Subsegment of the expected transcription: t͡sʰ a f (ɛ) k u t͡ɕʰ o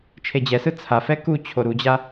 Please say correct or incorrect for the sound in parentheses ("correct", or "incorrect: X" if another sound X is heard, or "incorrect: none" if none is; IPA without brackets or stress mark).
correct